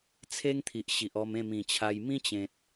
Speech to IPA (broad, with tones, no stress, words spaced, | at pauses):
t͡sʰe˦ŋt̪ʰi˨ʔɕi˨ʔ ɔ˧m ẽ˥˧mĩ˨˩t͡ɕʰa˧j mĩ˦t͡ɕẽ˨t̚